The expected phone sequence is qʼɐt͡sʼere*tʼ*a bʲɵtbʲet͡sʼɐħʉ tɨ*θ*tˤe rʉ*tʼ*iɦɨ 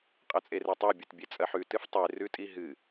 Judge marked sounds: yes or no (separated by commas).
no, no, yes